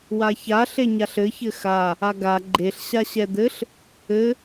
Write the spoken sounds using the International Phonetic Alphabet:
w a ç a ɬ e ɲ a ɬ ɘ ç ɘ x a | a ɡ a ɡ͡ǃ e ɬ ɕ a ɕ ɛ d̪ ɘ ɬ | ɘ

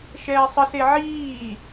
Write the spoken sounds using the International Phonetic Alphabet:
ʃ ɛː sˤ ə s e ʕ iː

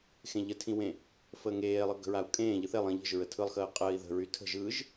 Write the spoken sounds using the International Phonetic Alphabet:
x ẽ ʎ ə tʰ ĩ w ẽ | f əː ŋ eː lˠ ɯ ɡ ə̤ ɹ a u̯ kʼ ẽː ʎ ɯ θ e lˠ ĩ ʎ ə̤ ʒ ɹ ə tʰ ɯ lˠ x əː qʼ əː i̯ ð ə̤ ɹ y tʰ ə̤ ʒ ɯ ʒ

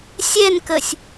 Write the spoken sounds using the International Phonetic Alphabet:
sʲ ɛ n k ə sʲ

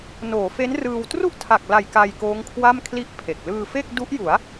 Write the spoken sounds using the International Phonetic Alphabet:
n oː˩˦ f e˦˥ n r ɯː˧ w t r u˥˩ ʔ tʰ a˨˩ k̚ l a˨˩ j k a˧ j k oː˦˥ ŋ kʰ w a˥˩ m kʰ l i˥˩ ʔ pʰ e˨˩ k̚ l ɯː˧ f e˥˩ k̚ d u˦˥ ʔ j u˩˦ a̯

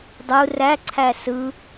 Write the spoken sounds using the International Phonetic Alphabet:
dˤ u r æ ǀʰ æ s ɯ

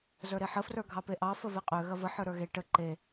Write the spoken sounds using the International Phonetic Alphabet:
z ə˞ ɾ e ħ ə f r ə˞ ɡʱ ɑ p e ʔ ɑ f ə v e qʼ ø ɣ ɐ v ə ħ ə˞ ɾ ə˞ ɣ e ʈ ə ǃ e

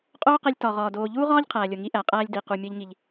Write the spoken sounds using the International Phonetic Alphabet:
qʼ oː˦ q e˧ lʲ t ɒ˨ ʁ ɒː˨ d oː˨ ʎ uː˦ ʁ ɒː˦ ʎ qʰ æː˨ lʲ o˨ ŋ i˧ ʔ æ˨ qʼ æː˧ lʲ d i˨ q u˨ mʲ ɒ˦ ʎ ŋ i˧ ʎ

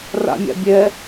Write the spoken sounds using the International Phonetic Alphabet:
r a̰ mʲ ɑ̰ bʲ ɛ

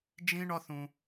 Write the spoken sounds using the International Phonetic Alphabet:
d͡ʒ ĩ˦ ɳ ɒ˦ θ ũ˧

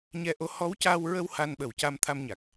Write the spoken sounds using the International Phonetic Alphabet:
ɲ ɛ˧˥ ʔ o˧˥ h ɔ˧˥ w c aː˧ w ɹ ə˧ w h a˧ n ɓ ə˨˩ w c a˧ m t̪ʰ a˧ m ɲ a˨˩ k̚

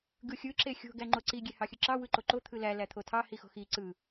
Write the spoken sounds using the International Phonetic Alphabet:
ɡ ɯ xʲ ɯ ǁ e xʲ o̤ ɡ æ ŋ͡ǃ o ǀ i ɡʲ e h ɑ xʲ ɯ ǁ ɑ w ɯ ǃ o ǃ o t̪ʰ ɯ l æ l æ t̪ʰ o tʰ ɑ h i x o̤ x i ǀ ɯ

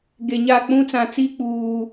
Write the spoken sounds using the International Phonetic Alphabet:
ɡ e˨ ɲ a˦˨ k͡p ũ˦ t͡s ã˨ t͡s iː˦ k͡p uː˨

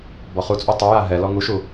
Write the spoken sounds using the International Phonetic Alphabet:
b ɔ χ u t͡sʼ u tˤ u j a ɦ ɛ l ɔ ŋ u ʃ u

